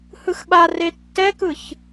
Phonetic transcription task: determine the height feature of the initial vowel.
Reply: high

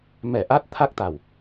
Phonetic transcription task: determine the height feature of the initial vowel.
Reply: mid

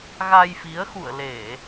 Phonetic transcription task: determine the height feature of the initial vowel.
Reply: low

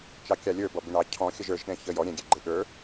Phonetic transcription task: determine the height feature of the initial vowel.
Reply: low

